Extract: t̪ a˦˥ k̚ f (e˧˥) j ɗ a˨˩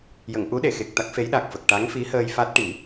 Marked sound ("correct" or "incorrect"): correct